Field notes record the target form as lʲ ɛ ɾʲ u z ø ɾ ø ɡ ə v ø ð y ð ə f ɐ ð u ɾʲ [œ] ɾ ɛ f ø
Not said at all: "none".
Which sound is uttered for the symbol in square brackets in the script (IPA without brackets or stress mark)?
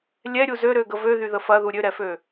ø